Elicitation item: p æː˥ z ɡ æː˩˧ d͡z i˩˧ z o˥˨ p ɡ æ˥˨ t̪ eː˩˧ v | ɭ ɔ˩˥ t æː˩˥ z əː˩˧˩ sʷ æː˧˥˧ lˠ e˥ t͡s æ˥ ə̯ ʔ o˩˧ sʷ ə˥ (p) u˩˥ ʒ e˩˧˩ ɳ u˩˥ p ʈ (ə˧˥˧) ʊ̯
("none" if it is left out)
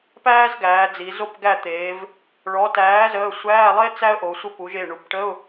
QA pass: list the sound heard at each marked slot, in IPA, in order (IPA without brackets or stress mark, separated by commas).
p, ə˧˥˧